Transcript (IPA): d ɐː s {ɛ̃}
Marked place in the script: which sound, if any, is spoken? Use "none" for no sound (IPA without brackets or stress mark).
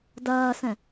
ɛ̃